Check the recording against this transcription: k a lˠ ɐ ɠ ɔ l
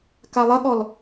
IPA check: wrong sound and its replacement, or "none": none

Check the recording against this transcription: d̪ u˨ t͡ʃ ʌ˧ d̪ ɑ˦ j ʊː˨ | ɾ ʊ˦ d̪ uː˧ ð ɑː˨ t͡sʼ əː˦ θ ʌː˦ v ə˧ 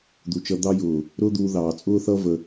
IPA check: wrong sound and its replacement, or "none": əː˦ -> ʊː˦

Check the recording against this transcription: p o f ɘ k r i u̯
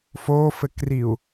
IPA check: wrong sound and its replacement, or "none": p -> f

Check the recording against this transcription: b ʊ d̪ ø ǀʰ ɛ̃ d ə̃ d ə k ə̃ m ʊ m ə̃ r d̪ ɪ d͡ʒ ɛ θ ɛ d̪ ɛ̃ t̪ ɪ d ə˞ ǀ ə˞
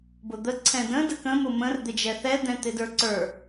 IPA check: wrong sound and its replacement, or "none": ø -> ə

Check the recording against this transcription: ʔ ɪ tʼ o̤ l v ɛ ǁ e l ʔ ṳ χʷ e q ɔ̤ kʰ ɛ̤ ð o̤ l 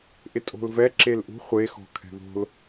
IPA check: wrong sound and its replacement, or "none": q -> x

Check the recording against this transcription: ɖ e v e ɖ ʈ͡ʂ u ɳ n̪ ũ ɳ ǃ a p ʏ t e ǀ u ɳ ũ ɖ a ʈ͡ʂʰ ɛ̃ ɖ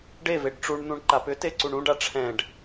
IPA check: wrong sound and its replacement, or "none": none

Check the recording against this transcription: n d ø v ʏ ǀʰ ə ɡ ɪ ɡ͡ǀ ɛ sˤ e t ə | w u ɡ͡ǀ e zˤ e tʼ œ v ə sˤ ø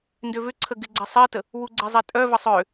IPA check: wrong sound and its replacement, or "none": none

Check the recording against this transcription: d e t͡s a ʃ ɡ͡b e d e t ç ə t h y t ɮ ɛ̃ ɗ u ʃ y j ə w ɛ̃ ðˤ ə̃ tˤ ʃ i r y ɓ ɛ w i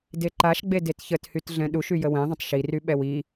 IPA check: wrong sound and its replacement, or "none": t͡s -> ǃ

